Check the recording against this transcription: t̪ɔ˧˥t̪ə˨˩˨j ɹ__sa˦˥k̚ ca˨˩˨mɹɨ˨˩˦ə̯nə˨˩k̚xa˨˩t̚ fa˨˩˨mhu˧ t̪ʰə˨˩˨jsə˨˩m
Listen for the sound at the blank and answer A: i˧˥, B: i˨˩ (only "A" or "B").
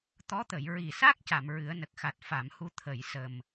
B